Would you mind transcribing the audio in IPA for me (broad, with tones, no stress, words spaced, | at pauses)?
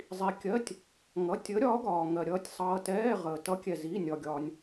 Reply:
zˤi˩kʲɜ˩˧˩tʲ | ŋʌ˩˧˩ tʲəː˨˥ɾʲɒː˨˥ɡɒː˩ŋɜ˩ ɾʲʌː˩tʲsˤʌː˩tɛː˩˧˩ ʁəː˩tʌ˨˥kʲɛ˩zi˩˧˩ nʲɒ˩ɡʲɒː˩nʲ